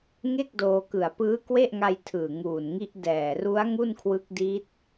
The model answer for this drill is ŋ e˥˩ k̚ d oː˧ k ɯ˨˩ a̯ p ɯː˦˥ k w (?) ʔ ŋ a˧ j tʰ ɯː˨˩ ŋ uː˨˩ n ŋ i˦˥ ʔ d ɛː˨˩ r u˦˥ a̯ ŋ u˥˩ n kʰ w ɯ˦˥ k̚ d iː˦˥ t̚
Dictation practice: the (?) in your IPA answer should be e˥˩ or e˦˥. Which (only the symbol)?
e˥˩